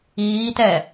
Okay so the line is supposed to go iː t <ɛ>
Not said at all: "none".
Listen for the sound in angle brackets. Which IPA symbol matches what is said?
ɛ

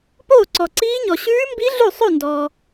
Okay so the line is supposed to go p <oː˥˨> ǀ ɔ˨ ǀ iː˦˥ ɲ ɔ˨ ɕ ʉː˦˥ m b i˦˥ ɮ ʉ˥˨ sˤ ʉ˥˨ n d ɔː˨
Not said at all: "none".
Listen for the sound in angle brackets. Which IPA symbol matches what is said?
oː˥˨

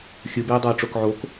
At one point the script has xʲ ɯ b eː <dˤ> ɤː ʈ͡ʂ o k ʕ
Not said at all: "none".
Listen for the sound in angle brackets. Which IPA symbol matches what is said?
dˤ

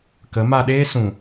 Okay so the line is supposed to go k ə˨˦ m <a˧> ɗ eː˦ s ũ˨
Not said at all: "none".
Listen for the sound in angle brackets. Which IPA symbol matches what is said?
a˧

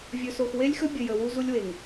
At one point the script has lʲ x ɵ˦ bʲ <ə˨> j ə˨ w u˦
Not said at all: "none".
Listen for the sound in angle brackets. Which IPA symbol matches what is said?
ə˨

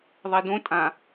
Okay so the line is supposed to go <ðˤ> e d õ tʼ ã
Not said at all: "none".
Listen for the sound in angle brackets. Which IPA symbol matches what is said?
ðˤ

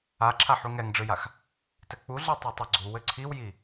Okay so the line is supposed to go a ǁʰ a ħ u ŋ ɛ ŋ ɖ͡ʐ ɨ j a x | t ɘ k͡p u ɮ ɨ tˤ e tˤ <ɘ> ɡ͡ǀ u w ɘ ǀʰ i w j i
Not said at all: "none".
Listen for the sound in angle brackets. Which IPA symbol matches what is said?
ɘ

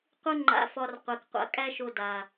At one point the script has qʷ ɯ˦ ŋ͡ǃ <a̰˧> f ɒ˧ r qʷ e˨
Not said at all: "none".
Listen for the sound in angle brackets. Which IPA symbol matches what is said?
a̰˧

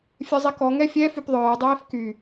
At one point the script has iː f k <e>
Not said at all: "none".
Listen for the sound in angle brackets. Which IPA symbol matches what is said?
y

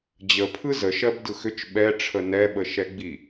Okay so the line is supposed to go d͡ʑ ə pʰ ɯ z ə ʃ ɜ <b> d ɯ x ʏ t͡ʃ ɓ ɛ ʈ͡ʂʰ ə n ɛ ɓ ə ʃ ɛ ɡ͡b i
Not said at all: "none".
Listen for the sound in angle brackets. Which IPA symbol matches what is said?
b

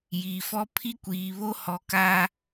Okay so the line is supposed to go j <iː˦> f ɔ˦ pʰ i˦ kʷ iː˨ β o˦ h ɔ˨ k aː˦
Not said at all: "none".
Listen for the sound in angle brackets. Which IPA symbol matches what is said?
iː˨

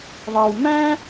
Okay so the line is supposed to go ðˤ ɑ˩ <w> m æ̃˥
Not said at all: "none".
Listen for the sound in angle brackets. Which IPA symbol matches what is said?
w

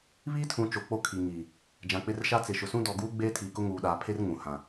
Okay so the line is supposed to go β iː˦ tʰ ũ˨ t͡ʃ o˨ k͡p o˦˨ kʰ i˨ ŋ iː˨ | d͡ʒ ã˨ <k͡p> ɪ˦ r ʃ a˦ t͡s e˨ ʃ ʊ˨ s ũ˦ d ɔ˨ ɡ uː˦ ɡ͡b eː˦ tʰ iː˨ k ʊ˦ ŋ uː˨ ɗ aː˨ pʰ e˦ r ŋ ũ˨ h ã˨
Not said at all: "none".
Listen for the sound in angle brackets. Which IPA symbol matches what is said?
k͡p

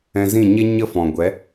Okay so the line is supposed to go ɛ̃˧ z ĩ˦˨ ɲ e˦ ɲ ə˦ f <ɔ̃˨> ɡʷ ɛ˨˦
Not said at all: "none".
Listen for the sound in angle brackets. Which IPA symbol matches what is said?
ɔ̃˨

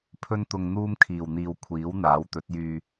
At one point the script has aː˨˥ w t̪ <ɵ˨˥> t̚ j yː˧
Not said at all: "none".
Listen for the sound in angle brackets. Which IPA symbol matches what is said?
ɵ˨˥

